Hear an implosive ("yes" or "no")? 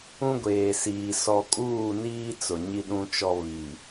yes